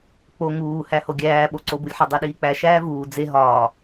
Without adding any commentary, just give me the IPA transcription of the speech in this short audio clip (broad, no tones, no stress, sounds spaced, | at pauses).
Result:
k͡p o ŋ uː h æ h o ɡʲ æː ɓ o ǀ o b u lʲ ħ ɒ dˤ e ɗ iː k͡p æ ʃ æː v uː d͡z e ɦ ɒː